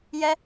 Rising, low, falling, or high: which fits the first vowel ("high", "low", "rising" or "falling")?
high